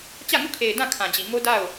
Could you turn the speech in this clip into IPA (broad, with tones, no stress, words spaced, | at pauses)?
t͡ɕä˦˨ŋu˦˨kʰe˨ɪ̯ dã˦˨ kʰã˨d͡ʑi˨ ŋo˦da˦˨ʊ̯